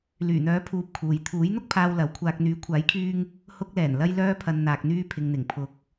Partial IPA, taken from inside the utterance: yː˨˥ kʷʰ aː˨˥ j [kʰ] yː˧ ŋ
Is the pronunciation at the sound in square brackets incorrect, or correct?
correct